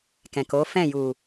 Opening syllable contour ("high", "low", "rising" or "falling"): low